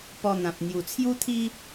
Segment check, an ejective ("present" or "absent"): absent